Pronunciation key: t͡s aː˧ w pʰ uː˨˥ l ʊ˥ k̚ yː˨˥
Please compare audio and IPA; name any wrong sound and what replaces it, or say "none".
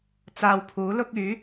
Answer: none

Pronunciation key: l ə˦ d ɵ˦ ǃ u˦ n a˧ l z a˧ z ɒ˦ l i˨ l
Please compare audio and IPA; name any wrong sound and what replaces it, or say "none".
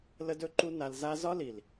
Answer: none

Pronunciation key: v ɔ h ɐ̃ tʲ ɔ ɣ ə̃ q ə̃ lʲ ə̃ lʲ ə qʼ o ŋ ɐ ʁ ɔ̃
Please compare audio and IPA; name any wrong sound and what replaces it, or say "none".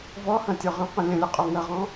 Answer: ɣ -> ʁ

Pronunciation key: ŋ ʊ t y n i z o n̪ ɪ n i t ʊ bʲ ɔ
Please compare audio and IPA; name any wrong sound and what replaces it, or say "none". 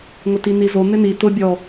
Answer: y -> i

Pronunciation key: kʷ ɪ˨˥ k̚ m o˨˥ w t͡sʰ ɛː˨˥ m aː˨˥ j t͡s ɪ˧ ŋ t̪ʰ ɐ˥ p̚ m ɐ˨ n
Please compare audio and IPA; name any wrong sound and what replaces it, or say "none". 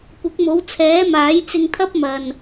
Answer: none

